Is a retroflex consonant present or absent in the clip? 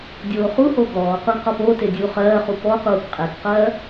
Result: present